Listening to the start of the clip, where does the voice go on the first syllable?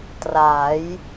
rising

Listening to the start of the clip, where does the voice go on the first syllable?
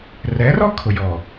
rising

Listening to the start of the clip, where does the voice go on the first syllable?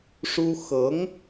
high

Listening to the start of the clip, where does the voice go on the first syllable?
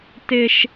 low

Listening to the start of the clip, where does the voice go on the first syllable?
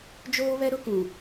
high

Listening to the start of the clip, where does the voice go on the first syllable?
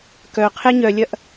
low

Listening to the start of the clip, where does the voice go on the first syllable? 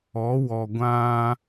rising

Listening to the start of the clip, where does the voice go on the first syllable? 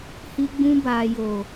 high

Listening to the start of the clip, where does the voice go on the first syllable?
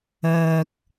low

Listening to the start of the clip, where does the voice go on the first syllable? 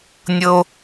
high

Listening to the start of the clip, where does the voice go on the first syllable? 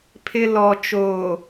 low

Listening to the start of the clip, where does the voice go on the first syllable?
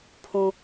low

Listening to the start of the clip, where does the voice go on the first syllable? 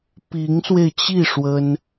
rising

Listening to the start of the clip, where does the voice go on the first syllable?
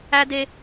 high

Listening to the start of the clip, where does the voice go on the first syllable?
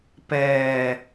low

